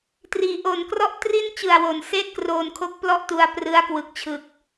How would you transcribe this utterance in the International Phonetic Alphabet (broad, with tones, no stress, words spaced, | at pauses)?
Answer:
triː˩˦ʔo˨˩nkrɔ˥˩ʔ tri˥˩n t͡ɕɯ˨˩a̯wo˩˦n seː˥˩t̚kroː˧nkʰo˦˥k̚ plɔ˥˩ʔtu˧a̯prɯ˦˥a̯ kwɯ˨˩k̚t͡ɕʰɯ˨˩k̚